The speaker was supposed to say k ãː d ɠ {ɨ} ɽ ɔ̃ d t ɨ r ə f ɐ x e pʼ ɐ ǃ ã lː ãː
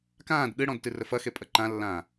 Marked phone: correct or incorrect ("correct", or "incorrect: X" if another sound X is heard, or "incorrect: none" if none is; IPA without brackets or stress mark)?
correct